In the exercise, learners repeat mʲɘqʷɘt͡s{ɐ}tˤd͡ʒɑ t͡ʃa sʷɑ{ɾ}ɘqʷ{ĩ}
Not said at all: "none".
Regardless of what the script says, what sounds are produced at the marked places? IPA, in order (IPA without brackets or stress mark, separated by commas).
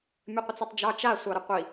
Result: ɐ, ɾ, i